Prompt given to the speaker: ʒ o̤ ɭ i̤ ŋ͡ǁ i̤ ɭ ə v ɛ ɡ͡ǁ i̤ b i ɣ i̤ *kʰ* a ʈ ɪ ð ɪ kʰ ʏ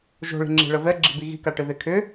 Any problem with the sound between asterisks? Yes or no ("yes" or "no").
yes